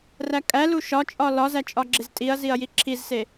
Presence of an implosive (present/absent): absent